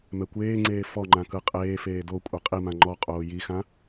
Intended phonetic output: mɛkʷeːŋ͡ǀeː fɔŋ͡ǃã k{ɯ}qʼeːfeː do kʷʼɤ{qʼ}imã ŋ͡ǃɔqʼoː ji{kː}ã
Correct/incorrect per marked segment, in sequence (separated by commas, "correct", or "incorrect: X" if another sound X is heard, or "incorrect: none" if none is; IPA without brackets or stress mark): correct, correct, incorrect: x